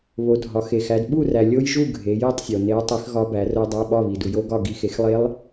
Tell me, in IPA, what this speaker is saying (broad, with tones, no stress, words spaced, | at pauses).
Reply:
βo˨˦dʱɒ˨˦ xe˨xæ˨˦d ɓu˥˨ræ˨ lʲo˦˥jʒu˥˨ ɡʱe˨˦ji˥˨tˤsʲo˨ ne˨˦ɐ̯tˤi˨˦x ɣɒ˦˥bæ˨˦ro˦˥ dˤæ˧˥˧ɓɒ˥˨βi˨ du˨jo˦˥ ɡɒ˥˨ ɡi˦˥ xe˨˦xlˠe˦˥lˠ